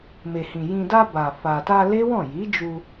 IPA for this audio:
m e˨ h ĩ˨ j ĩ˨ d a˧ b a˨ f a˨ t a˧ l e˦ w ɔ̃˦˨ j i˨˦ d͡ʒ u˧

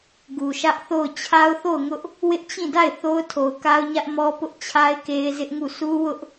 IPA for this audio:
ɡ u˨ ʃ ä˦ ʔ θ o˦˨ ʊ̯ t͡ɕʰ a˦ ʊ̯ θ o˦˨ ʊ̯ ŋ ʊ˦ ʔ | w ɪ˦ ʔ t͡ɕ ĩ˦˨ d a˦˨ ɪ̯ θ o˦ ʊ̯ tʰ o˨ ʊ̯ k a˦ ʊ̯ ɲ ä˦ ʔ m ɔ˦ p ʊ˦ ʔ t͡ɕʰ a˦ ɪ̯ k e˦ ɪ̯ z ɪ˦ ʔ ŋ u˦˨ s u˦ w ʊ˦ ʔ

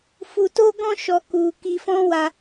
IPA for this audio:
f u˧ t o˦ ɡ ɔ̃˦ ʃ ɔ˧ k u˧ k i˧ f ɔ̃˦ w a˧

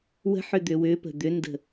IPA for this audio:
w ə̤ ħ ʏ d̪ ʏ w ʏ p ə̤ d̪ ʏ n d ə̤

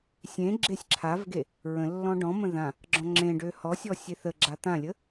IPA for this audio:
sʲ ẽ ɡ͡ǁ e sʲ ǁʰ a v ɡ e | ɹ ə̃ lː ɔ̃ ɖ ɔ̃ m ə̃ ð ã | ɡ͡ǁ ɔ̃ ŋ͡ǁ ẽ ɖ ø h ɔ sʲ ɔ sʲ e θ ə ɡ͡ǁ a t̪ ã lʲ ə

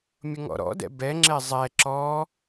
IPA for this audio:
mʲ ʊ ŋ ɔ̰ ɾ ɔ̰ d ɛ̰ b ɛ ŋ͡ǁ ɛ zˤ ɛ ǁ ɔ

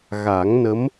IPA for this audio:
ɣ a˨˩˦ ŋ n ə˧˥ m

